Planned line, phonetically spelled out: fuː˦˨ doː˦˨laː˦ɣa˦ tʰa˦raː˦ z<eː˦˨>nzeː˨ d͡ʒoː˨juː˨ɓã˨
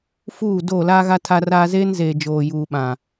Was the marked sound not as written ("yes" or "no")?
yes